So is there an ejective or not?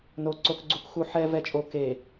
yes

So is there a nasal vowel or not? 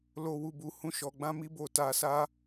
yes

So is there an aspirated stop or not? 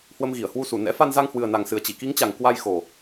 no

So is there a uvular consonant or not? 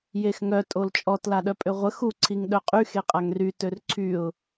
yes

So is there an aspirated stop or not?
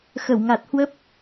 no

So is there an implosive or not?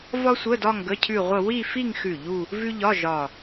no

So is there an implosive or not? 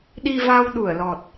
yes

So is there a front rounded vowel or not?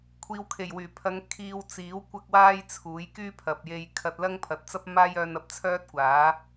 yes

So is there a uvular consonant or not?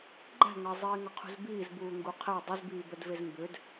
yes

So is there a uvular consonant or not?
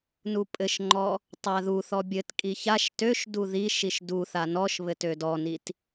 no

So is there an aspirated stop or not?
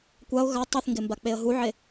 no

